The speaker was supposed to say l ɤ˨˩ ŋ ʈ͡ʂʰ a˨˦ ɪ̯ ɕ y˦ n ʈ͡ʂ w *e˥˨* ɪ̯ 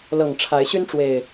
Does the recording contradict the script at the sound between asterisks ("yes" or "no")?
yes